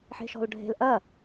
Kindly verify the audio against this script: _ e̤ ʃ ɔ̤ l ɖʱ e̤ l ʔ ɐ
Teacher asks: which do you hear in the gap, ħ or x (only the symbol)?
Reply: ħ